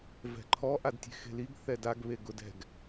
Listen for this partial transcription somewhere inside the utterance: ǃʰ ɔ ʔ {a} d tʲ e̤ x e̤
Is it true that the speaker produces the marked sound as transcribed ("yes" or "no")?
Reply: yes